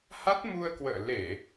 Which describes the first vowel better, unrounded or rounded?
unrounded